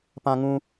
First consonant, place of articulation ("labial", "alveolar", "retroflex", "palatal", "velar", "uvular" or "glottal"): labial